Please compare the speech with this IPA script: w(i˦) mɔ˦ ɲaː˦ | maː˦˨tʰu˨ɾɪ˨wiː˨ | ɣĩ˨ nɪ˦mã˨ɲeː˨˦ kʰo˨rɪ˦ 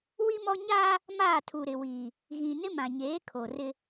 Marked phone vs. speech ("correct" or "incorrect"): correct